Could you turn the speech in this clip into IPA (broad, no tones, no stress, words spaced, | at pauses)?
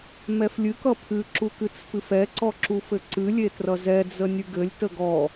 mɛflʲɨk ʌpʰɨ ǁukɨt͡sfɨfɛ ǀɔǁufɘǀɨ lʲetrʌzɛ d͡zənʲɨɡɘlʲ təɡɔ